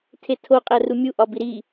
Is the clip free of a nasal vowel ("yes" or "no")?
yes